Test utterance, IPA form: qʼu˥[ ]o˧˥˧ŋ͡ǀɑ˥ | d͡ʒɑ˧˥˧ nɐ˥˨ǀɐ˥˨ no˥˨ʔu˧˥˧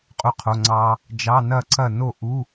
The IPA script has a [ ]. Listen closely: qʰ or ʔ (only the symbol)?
qʰ